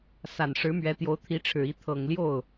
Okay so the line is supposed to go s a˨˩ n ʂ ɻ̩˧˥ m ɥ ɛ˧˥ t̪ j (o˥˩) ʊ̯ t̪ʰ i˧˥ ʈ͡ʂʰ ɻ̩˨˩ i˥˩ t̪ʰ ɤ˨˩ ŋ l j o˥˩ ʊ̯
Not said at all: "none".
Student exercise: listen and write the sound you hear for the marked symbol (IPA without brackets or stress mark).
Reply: o˧˥